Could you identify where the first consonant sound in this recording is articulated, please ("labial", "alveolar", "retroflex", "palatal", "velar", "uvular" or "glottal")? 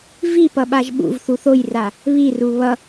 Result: labial